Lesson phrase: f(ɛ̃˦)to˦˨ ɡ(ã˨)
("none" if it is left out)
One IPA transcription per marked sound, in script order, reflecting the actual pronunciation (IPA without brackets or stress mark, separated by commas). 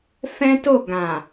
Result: ɛ̃˦, ã˨